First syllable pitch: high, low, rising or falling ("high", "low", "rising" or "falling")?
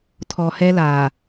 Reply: low